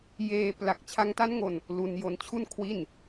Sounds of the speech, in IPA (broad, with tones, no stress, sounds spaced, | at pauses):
j eː˧ p l a˨˩ k̚ t͡ɕʰ a˧ ŋ t a˦˥ n ŋ o˧ n | l u˧ n j o˧ n t͡ɕʰ u˥˩ n kʰ w i˥˩ n